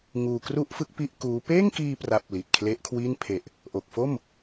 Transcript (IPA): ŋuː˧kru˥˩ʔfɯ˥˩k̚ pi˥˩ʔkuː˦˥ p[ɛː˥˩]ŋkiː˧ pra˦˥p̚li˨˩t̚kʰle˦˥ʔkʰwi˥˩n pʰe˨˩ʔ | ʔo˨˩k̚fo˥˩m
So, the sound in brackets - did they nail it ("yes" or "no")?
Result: no